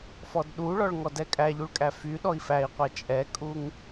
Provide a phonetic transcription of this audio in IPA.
f ɔ d ɗ u ɭ ɔ ɭ ŋ ɔ d ɛ kʼ æ ʎ u ɭ kʼ æ f y ɗ ɔ i̯ f æ i̯ qʷ æ t͡ʃʼ ɛ kʼ u ŋ

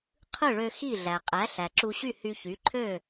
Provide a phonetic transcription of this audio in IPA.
qʰ ɯ˥˩ ɭ ø˧ x i˥˩ ɮ æ˩ qʼ æ˩˥ ɬ æ˩ ǁ u˧ ɕ y˥˩ h y˧ ç y˩˥ ǃʰ ø˥˩

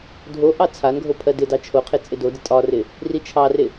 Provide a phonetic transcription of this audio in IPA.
dʱ o ʔ ɑ t͡sʰ a n ɡʱ o pʰ ɜ d ɪ d ɑ t͡ʃʰ o qʰ e t͡sʼ ɪ d o d ɪ tʼ ɒ r ɪ | r i t͡ʃʰ ɑ r ɪ

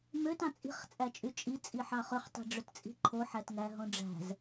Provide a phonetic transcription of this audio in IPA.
m ø t ɑ̃ t͡sʼ i̤ χ t͡sʼ æ t͡ʃʼ y t͡ʃʼ i t͡sʼ i ħ ɑ χ ø χ tˤ i̤ ɖ͡ʐ ø t t͡sʼ i̤ ǃʰ o ħ æ t ŋ æ ɦ õ ɖ͡ʐ æ̤ z

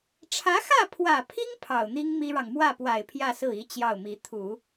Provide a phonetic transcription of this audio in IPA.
ʈ͡ʂʰ ä˧˥ x ä˥˩ pʰ w ä˨˩ pʰ i˥ ŋ pʰ ɑ˨˩ ʊ̯ n̪ i˥ ŋ m i˥ ɻ ɑ˨ ŋ m w ä˥˩ p w a˨˩ ɪ̯ pʰ j ä˥˧ s ɹ̩˥˩ i˧˥ t͡ɕ j ɑ˥˩ ʊ̯ m i˧˥ t̪ʰ u˨˩˦

